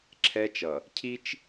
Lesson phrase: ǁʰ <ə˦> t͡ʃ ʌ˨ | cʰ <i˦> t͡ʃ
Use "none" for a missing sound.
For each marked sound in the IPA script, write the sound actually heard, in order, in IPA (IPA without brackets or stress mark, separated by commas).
ɛ˦, i˦